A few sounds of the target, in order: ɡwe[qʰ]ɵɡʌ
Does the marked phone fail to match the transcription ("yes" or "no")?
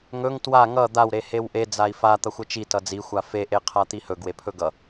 yes